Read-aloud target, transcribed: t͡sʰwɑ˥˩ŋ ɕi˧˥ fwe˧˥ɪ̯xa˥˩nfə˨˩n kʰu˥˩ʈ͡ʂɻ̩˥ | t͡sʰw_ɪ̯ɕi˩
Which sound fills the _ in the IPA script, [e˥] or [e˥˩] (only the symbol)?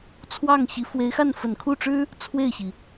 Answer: e˥˩